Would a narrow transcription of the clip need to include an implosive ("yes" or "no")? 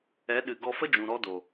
yes